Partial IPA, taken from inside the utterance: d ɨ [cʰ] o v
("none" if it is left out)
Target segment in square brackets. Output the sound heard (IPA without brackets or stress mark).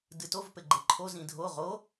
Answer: t